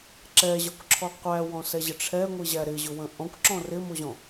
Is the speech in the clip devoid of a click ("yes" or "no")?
no